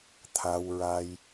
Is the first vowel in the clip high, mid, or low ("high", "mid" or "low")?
low